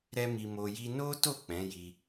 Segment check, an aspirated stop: absent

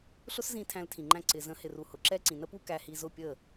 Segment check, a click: present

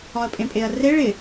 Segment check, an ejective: present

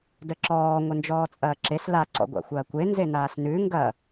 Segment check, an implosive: absent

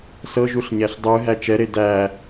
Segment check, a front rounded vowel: absent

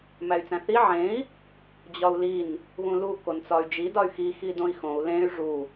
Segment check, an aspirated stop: absent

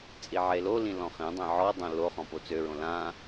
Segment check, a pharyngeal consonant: present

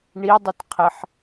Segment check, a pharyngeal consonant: present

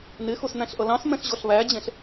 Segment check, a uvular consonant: absent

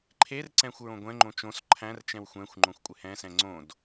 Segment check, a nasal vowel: present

